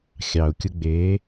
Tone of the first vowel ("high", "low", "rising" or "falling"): low